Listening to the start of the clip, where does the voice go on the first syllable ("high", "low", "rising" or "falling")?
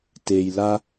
low